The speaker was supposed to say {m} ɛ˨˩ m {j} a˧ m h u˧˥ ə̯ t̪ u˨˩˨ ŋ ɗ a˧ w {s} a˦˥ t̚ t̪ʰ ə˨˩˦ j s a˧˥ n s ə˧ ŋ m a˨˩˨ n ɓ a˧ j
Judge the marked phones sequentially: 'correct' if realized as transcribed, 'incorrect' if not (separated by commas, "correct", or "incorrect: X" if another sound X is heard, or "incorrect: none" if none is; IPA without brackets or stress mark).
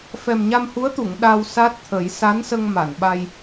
incorrect: f, incorrect: ɲ, correct